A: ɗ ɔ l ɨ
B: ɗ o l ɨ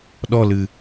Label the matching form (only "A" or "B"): A